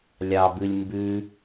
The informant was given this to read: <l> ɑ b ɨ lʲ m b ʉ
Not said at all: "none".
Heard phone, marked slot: lʲ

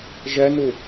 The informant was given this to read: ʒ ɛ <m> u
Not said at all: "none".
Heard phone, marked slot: n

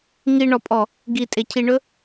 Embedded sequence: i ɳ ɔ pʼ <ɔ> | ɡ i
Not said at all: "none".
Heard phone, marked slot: ɔ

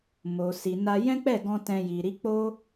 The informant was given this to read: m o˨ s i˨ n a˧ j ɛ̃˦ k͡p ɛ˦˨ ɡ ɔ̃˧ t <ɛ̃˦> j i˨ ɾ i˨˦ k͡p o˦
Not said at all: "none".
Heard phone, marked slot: ɛ̃˧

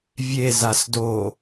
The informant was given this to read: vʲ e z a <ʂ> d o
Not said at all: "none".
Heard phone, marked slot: s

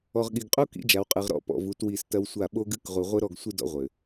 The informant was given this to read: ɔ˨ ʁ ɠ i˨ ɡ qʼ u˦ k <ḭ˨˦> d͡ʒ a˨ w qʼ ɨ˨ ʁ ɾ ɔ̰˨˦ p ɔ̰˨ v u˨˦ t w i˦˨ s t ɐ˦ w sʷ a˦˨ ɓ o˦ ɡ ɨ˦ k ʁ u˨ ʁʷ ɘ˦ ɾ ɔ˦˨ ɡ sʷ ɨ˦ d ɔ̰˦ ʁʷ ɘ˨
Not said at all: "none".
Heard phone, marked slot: ḭ˨˦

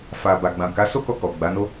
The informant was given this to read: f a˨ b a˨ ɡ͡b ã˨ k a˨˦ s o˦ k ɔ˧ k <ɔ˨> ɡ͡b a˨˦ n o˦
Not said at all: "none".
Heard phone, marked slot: ɔ˨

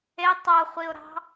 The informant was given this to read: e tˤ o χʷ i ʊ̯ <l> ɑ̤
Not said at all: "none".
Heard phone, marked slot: ɾ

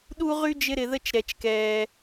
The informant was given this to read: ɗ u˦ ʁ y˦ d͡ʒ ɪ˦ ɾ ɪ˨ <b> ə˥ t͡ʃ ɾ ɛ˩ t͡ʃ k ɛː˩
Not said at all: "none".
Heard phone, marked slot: ð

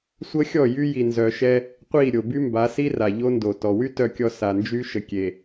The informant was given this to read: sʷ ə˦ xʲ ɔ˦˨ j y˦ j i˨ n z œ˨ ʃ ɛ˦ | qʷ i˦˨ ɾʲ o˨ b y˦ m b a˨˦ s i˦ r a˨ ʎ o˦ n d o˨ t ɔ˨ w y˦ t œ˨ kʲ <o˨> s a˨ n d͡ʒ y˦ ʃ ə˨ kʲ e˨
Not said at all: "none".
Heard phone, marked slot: ɔ˨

